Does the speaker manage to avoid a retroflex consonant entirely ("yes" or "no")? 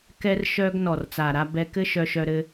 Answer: yes